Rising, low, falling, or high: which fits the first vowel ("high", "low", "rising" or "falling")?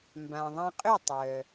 low